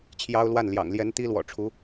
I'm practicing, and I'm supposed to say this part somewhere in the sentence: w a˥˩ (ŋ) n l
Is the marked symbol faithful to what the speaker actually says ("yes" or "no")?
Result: no